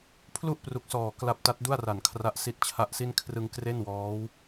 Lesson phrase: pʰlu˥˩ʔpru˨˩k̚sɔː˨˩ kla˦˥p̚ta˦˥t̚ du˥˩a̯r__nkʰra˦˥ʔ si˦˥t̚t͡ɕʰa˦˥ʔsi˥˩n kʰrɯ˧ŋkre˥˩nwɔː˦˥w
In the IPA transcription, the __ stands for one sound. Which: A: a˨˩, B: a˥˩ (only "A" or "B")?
A